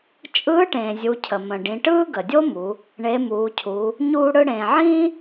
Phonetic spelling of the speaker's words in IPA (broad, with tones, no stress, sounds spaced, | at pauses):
t͡ʃʼ ɯː˧˥ ʈ ẽː˩ zʲ u˩˧ cʰ ə˩ m ə̃˩ ɖ ĩ˩˧ ʈ ɯː˥ ɡ ə˩ dʲ o˥ m u˩˧ | ɳ e˩˧ m uː˩˧ cʰ u˩˧ | ɲ uː˧ ɽ ɯ˧ ɽ ẽː˩ ʕ ĩː˥